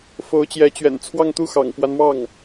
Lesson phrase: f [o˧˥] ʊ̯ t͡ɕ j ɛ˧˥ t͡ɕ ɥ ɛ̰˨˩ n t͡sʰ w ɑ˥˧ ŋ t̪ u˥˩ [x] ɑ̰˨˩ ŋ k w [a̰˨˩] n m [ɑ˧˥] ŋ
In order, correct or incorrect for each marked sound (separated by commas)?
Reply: correct, correct, incorrect, incorrect